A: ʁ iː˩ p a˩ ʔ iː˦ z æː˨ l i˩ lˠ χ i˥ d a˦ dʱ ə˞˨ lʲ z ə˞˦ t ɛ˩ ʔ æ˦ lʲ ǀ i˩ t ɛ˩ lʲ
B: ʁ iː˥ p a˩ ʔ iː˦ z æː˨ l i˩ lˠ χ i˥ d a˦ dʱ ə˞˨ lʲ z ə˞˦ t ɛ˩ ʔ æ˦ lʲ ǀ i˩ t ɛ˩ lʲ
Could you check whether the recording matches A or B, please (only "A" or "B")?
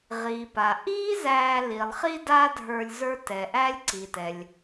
A